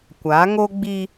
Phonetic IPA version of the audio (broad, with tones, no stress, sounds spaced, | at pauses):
kʷ a˨˦ ŋ o˦ ɡ͡b i˦